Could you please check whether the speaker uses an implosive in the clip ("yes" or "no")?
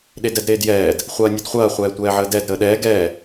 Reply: yes